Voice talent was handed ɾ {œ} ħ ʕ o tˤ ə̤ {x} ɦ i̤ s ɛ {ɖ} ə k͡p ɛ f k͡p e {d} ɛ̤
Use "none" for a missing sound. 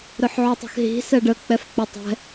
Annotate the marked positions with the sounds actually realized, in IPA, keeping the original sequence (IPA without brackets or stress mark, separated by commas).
œ, x, ɖ, tˤ